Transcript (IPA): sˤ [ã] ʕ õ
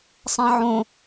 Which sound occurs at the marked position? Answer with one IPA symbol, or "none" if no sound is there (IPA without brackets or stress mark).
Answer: ã